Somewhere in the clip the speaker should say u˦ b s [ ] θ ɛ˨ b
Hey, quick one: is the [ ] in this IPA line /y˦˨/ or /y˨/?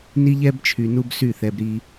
y˦˨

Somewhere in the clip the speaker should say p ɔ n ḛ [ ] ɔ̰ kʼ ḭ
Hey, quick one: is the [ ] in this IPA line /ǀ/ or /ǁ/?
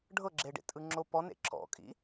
ǁ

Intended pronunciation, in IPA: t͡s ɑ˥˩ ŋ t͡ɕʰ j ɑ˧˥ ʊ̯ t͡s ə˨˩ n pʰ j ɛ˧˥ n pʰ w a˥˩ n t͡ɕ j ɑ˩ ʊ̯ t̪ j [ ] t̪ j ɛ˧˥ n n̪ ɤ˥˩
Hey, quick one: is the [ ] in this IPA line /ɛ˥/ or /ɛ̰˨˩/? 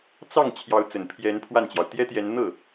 ɛ˥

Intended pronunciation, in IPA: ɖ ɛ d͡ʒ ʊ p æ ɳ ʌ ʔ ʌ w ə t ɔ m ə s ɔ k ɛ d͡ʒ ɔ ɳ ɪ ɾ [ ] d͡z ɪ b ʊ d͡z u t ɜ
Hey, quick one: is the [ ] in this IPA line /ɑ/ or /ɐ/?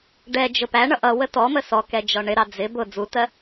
ɑ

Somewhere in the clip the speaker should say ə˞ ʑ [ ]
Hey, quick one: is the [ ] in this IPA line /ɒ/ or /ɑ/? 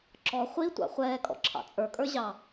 ɑ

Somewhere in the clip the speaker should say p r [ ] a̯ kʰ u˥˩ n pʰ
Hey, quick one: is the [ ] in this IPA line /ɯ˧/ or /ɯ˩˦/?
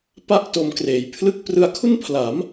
ɯ˧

